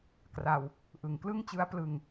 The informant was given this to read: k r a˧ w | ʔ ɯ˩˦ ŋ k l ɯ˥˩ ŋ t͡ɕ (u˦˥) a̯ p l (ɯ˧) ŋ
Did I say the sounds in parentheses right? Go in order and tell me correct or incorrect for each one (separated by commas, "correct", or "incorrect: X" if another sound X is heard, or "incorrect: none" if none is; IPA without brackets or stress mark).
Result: incorrect: ɯ˦˥, correct